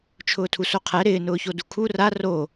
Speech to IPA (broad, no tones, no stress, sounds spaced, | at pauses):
t͡ʃʰ ʊː tʰ u s o qʰ ɛ ɾ ɪː n ʊː ç o d u kʰ u r a r o